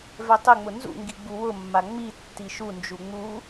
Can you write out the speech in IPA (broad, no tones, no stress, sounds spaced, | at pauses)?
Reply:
v ɛ tˤ ɪ ŋ͡m ʊ n z ṵ ŋ ɡ i ɡ͡b u w ʊ mː a ŋ͡m i tː i ʃ u n d͡ʒ u ŋ͡m u